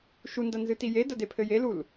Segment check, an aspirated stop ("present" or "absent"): present